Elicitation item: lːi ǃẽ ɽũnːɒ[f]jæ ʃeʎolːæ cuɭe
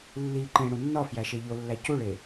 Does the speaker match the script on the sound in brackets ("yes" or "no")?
yes